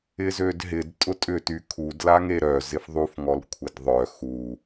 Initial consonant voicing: voiced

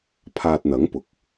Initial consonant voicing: voiceless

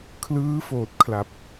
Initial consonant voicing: voiceless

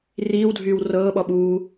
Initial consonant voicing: voiced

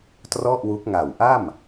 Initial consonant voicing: voiceless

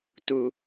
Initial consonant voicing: voiceless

